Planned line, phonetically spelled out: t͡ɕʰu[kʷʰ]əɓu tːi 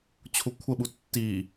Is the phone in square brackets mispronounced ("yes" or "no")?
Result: no